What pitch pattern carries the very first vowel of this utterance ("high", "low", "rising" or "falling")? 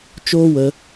high